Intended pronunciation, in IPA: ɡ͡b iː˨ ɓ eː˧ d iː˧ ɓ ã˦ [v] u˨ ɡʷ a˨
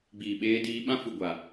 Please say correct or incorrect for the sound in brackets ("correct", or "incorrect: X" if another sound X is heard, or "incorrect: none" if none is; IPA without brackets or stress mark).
incorrect: f